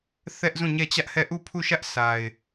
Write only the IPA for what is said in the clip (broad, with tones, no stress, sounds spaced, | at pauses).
θ ɛ˦ ʔ z ũ˦˨ ɲ ɛ˦˨ t͡ɕ ä˦ ʔ h ɛ˦˨ ʔ u˦˨ pʰ u˦˨ ʃ ä˦ ʔ s a˨ ɪ̯